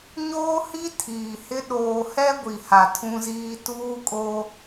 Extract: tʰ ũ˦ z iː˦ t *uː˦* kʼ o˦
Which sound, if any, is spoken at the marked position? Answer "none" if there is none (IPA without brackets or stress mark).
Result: uː˦